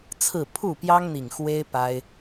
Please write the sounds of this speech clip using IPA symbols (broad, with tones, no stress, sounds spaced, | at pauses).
t͡sʰ ɹ̩˥˨ pʰ u˥˨ p j ɑ˦ ŋ n̪ i˨˩ ŋ x w e˦ ɪ̯ p a˦ ɪ̯